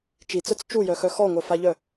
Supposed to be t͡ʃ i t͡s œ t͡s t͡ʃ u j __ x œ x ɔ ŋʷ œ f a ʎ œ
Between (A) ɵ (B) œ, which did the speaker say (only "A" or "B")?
B